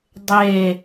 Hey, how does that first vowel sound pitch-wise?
falling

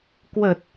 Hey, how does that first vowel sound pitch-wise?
low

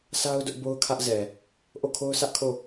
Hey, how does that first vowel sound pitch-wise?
high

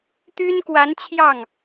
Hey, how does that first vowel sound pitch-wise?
high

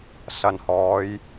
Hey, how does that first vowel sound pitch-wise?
low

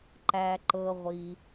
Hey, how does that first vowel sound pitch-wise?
low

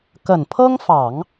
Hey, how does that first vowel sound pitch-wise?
low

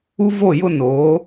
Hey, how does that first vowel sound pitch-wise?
high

